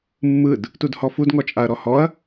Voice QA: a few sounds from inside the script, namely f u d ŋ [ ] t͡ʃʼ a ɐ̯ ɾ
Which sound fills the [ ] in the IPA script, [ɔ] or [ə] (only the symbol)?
ɔ